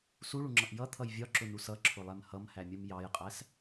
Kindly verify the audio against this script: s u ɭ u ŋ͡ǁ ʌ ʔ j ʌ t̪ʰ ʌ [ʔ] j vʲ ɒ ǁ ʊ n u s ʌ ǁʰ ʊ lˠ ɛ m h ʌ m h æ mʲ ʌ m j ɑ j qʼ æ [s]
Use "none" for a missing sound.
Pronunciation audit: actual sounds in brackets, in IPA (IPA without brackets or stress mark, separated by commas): none, s